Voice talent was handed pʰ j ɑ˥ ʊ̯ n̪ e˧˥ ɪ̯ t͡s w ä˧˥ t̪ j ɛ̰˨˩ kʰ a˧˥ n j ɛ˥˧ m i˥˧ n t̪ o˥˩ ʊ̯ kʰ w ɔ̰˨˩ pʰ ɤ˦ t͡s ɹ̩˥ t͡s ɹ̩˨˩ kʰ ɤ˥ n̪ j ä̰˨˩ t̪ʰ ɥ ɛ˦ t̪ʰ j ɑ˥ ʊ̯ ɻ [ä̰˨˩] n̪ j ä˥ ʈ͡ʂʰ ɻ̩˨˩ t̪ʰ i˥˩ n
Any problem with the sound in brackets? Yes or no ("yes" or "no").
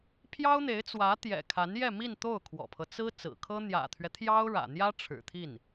no